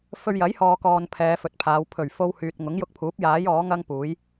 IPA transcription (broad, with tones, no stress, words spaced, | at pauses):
fɵ˧ɥjɐ˨˥jhɔː˨kɔː˨n pʰɛː˨˧fɵ˨t̚pʰaː˨˧w pʰɵ˨˩ɥ fo˧w hyː˨t̚ŋʊ˨˥ŋjʊ˧k̚pʰuː˨˥p̚ jaː˨˥j ɔː˨˥ŋɐ˥ŋpuː˨˥j